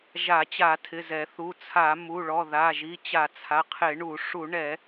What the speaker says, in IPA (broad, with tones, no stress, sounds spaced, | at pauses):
ʒ a˧˩˧ t͡ɕ a˧˩˧ tʰ ɪ˩˧˩ z ɛ˧˩˧ θ u˩˧˩ t͡sʰ a˧˩˧ m u˩˧˩ ɭ ɔ˩˧˩ ð a˩˧˩ ʒ i˩˧˩ t͡ɕ a˧˩˧ t͡sʰ a˩˧˩ qʰ ɪ˧˩˧ ɳ u˧˩˧ ʂ u˧˩˧ ɳ ɛ˧˩˧